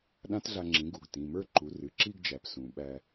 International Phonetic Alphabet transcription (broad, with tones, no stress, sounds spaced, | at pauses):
ɗ ã˦˥ t ɮ a˧ ŋ͡ǁ ĩ˩˥ ɡ u˩˧˩ ɡ t ĩ˩˧˩ m ə˞˥˧ ǃ u˩˥ r ɨ˩˧˩ ǁ i˥˧ ɡ d͡ʒ æ˩˧ p s ũ˩˧ ɓ æ˧